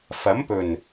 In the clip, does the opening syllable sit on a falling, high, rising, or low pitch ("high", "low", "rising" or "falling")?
rising